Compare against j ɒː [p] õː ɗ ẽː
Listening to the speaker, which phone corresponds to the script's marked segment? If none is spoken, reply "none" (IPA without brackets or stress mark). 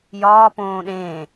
p